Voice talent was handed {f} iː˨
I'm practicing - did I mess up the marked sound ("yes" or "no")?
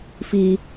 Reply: no